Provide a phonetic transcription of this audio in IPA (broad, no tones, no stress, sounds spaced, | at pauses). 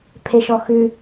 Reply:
pʰ e ʃ ɔ x ʉ